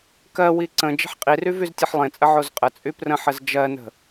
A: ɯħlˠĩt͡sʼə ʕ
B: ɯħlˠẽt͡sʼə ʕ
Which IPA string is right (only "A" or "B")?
B